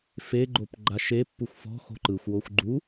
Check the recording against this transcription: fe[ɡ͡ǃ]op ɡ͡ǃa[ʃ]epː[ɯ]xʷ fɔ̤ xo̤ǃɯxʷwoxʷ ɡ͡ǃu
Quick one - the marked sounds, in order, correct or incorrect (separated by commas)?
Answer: correct, correct, incorrect